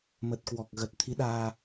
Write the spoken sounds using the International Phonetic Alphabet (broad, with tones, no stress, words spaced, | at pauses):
mə˨˩t̚kwɔ˨˩k̚ɣə˨˩t̚ t̪ʰi˨˦ɗaː˧